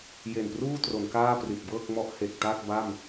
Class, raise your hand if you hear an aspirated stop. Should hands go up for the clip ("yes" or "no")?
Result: no